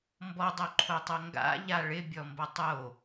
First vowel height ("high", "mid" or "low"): mid